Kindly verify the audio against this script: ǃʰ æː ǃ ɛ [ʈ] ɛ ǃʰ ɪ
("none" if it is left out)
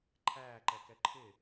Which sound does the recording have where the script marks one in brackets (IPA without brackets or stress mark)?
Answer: k